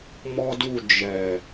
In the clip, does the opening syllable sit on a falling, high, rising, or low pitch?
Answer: high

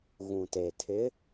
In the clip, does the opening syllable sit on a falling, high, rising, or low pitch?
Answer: low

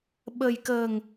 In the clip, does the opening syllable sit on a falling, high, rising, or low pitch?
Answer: low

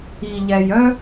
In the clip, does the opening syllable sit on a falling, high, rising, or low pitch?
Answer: low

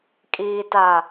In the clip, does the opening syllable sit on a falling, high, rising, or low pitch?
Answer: low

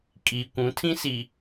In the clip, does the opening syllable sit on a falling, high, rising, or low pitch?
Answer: low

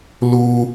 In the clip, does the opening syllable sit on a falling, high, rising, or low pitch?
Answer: high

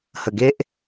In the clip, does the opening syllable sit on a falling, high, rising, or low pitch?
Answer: low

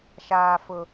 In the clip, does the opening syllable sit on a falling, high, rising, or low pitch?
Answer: low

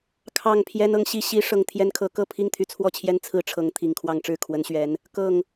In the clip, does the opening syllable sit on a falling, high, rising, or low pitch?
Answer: falling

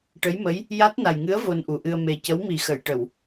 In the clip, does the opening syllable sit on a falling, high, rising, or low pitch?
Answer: rising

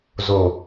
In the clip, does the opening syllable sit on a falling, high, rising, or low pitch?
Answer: low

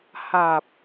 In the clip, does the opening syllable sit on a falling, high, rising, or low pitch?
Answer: low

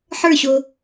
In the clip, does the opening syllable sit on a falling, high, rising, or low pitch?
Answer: falling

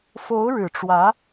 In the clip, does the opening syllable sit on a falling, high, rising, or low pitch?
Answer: rising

